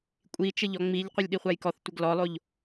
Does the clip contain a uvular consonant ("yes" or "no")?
yes